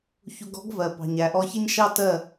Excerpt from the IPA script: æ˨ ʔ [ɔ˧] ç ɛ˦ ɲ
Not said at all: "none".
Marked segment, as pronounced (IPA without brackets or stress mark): ɔ˧